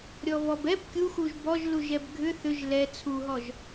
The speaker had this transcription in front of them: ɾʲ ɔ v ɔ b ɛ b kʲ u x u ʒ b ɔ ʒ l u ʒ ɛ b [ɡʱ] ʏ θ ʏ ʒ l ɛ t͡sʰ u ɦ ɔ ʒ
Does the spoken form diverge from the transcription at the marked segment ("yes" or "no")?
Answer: no